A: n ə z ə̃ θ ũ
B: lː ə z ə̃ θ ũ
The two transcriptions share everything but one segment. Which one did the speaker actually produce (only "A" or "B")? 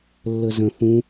B